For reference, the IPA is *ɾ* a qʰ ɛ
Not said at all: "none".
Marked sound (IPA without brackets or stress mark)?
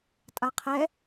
tʼ